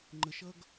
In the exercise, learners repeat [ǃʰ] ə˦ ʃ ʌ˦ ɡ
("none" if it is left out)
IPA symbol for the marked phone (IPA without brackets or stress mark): ŋ͡ǃ